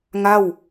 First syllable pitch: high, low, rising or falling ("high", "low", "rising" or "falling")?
falling